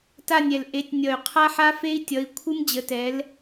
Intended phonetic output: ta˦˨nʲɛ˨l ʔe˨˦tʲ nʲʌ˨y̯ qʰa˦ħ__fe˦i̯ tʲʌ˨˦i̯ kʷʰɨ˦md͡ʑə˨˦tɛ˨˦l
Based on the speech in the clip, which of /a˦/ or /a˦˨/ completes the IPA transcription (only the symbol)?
a˦